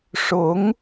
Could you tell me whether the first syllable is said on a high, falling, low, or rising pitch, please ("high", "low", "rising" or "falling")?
rising